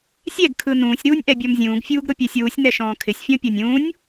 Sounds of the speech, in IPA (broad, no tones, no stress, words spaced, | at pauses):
sʲɛɡ kʰɯnũːsʲ ɾuːnʲʔɛbʲɔmzʲũːɡ fʲuːɡɾʊpʲɛsʲwusʲ nɛʃɔ̃ːkʰɪsʲ fʲɔ̃pʲɔnʲũːnʲ